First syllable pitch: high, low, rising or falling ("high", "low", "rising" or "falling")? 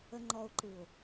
low